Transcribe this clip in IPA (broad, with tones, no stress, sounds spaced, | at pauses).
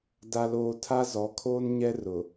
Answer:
d a˨ l oː˨ tʰ a˦ z ɔ˨˦ kʰ oː˦ n ɲ ɛ˦ r ʊ˨